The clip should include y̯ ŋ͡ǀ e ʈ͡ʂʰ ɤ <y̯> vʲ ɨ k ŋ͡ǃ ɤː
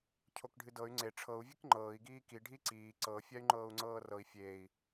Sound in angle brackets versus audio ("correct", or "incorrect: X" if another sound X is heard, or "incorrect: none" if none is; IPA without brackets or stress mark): incorrect: u̯